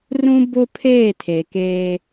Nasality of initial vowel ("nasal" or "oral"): nasal